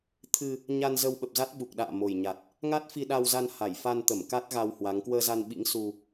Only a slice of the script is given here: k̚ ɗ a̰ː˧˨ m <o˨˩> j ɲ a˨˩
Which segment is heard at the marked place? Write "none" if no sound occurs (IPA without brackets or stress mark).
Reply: o˨˩